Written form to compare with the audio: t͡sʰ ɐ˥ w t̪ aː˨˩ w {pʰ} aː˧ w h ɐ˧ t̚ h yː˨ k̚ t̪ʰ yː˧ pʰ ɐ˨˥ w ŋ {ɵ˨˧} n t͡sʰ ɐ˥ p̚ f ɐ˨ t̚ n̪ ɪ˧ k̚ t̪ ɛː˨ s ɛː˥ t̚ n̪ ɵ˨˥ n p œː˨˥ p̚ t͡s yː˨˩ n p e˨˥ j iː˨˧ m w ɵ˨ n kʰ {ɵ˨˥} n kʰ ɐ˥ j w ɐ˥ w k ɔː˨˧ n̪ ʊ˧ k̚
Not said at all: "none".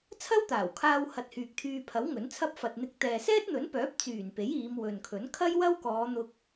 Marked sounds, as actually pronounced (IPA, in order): kʰ, ɵ˨˥, ɵ˨˥

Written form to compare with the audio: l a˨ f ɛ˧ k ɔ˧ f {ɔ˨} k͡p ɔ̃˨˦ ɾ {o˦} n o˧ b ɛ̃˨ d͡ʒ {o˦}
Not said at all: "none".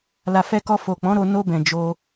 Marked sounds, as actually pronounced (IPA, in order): o˨, o˧, o˧

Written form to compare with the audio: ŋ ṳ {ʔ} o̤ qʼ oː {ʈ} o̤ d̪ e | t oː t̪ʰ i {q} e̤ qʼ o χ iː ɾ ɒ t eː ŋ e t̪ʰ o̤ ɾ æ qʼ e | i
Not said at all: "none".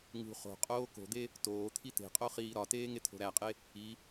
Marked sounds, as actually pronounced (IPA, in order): χ, k, t̪

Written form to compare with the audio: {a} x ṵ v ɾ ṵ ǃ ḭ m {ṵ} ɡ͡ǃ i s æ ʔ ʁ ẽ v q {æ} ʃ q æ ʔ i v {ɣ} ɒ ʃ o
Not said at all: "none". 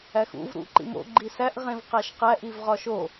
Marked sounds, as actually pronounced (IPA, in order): æ, o̰, æ, ʁ

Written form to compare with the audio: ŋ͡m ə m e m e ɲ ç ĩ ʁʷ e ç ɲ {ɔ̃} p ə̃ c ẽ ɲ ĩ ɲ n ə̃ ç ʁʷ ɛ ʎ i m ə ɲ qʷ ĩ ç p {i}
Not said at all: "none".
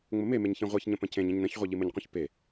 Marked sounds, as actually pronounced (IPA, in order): ə̃, e

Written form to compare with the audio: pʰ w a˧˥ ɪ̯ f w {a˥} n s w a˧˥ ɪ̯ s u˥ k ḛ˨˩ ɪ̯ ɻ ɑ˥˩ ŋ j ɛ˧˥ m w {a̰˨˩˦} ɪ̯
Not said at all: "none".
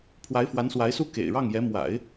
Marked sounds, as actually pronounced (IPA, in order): a˧˥, a̰˨˩˦

